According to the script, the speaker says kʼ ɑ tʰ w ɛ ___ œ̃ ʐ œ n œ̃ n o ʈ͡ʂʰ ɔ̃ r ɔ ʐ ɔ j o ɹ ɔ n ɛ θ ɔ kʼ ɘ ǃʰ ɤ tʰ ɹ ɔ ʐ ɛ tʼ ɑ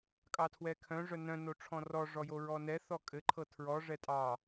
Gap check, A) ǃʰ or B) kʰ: B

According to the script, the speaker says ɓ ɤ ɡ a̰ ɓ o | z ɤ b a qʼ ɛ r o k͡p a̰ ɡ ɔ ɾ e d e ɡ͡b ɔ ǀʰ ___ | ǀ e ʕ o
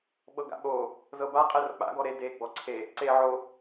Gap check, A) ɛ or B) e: B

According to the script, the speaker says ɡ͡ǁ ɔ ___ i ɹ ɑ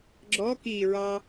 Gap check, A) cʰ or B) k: B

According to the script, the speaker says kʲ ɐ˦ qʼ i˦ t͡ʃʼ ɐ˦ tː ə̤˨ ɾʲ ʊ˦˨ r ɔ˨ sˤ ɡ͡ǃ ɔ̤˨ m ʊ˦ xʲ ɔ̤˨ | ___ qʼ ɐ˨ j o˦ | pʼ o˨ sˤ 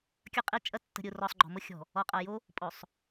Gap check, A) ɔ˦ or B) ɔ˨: B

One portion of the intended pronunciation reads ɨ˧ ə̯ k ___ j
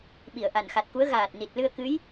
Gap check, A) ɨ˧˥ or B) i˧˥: A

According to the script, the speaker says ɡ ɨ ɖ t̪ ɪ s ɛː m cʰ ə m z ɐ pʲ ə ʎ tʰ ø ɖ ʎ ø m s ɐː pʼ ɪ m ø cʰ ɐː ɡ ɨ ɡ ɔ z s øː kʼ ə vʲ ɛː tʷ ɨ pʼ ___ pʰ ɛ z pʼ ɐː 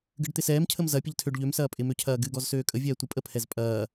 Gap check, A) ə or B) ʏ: A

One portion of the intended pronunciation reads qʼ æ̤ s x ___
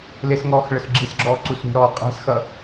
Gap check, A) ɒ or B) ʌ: B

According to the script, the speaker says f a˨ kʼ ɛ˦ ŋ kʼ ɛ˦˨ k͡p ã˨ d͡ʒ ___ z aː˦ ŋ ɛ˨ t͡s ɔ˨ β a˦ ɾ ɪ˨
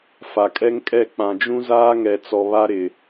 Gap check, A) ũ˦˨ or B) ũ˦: B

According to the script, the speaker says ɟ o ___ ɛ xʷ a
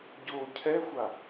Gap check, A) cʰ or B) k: A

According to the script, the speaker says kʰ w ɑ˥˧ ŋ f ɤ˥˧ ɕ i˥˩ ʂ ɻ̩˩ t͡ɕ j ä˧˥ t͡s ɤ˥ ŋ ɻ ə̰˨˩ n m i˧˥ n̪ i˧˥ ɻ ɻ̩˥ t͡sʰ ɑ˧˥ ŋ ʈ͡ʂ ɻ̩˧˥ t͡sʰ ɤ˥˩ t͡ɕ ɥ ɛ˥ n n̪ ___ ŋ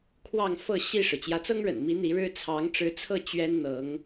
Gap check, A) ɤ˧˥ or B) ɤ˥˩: A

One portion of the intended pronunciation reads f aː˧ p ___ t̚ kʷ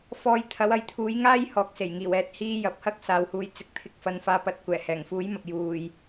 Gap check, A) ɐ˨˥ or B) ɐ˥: A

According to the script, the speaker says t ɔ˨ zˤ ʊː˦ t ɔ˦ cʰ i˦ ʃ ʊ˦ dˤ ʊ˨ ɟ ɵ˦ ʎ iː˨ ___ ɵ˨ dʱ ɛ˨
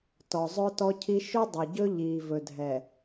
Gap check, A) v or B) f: A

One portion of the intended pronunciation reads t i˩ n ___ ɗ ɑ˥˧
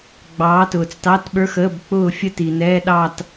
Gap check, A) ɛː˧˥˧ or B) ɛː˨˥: A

